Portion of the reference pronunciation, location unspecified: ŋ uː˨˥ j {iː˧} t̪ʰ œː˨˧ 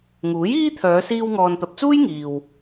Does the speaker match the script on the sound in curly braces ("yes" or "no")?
no